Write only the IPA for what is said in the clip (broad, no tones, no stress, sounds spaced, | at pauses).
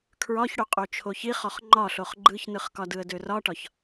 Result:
kʰ ɹ ɒ ç ɽ o qʼ o t͡ʃʰ o ç i χ ɔ χ ŋ͡ǃ ɒ ɬ o χ ɡ͡ǃ ɯ ç n ɯ χ k ɒ d ɯ ə̯ d ø r ɒ ʈ ɒ ç